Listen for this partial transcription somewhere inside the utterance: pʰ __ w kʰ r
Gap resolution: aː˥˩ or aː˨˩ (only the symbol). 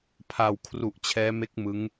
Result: aː˨˩